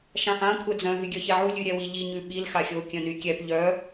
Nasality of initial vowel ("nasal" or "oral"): nasal